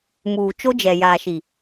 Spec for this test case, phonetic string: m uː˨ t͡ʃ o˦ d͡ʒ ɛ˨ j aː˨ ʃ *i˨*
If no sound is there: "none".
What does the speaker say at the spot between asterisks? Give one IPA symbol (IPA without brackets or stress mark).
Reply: i˨